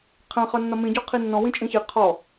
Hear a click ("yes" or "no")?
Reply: no